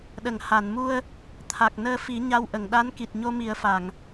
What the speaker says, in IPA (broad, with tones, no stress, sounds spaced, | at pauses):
ɗ ə˨˩˨ ŋ h a˨˩˨ n m u˧ ə̯ | t̪ʰ a˨˩ k̚ n əː˧ f i˨˩˦ ɲ a˧ w ʔ ə˨˩˨ ŋ ɗ a˧˥ n k i˨˩ t̚ ɲ o˧ m i˨˩˦ ə̯ f a˨˩˨ ŋ